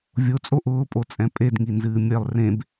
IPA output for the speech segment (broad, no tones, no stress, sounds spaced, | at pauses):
vʲ o t͡sʼ o ʔ ʊː pʼ o t͡sʼ ɛ̃ pʼ e d ŋ i n z ɨː mʲ ɛ lˠ r ẽ b